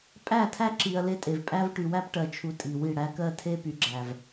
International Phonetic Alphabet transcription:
pʼ æ˦˨ tʰ æ˦ ǁ i˨ ɐ̯ l e˦ tʼ e˨ v pʼ æ˦ v ʈ y˨ w æ˦ p ʈ ɜ˨ t͡ʃʰ u˨ tʼ i˨ w i˦˨ ɽ æ˦ k ɜ˦ tʰ e˦ p y˨ ɡ͡ǁ æ˨ v

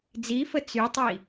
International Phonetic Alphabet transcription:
d͡z i f ə t͡s y tˤ i

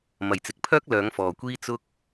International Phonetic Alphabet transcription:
m ɐ˨ j t͡s ɪ˨ k̚ pʰ œː˥ k̚ l œː˨˧ ŋ f ɔː˨ kʷ iː˥ t͡s ʊ˥ k̚

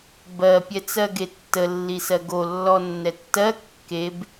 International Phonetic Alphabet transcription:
b ɜ pʲ ɛ t͡s ɜ ɡ e tː ə lː i s ɜ ɡ o lː ɔ nː ɛ tː ɜ kː e b

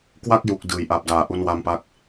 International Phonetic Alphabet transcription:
k w a˥˩ k̚ j u˨˩ k̚ d ɯː˩˦ j ʔ a˨˩ p̚ d aː˨˩ ʔ u˧ n w a˧ m p a˦˥ k̚

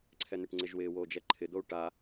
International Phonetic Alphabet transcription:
ǀʰ ɛ n̪ ɪ ʈ ŋ͡ǀ ɪ ʒ w ɪː w oː d͡ʒ ɛ ǃʰ ɪ d̪ o u̯ ʈ a

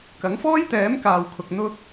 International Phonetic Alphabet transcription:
k ɐ˨˥ ŋ f ɔː˥ j t̪ ɛː˨˥ m k aː˨ w kʰ ʊ˨ k̚ n̪ ʊ˧ k̚

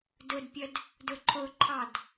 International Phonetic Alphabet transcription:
d ʊ d pʲ ə d | d ʊ ǃʰ ʊ ǃʰ ɑ d

